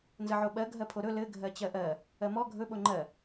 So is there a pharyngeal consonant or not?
yes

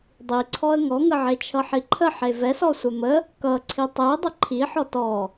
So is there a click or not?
yes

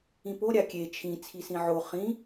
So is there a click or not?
no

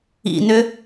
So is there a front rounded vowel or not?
yes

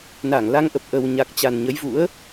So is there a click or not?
no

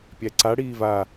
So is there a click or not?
yes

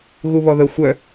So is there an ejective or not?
no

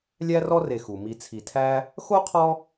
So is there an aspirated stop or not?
yes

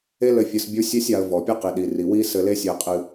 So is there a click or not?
no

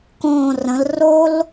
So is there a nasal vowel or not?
yes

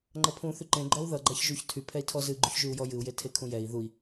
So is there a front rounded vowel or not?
yes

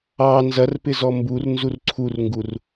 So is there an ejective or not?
no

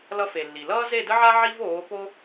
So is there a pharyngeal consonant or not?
yes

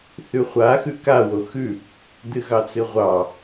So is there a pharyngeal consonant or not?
no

